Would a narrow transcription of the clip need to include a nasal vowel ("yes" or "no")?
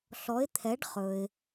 no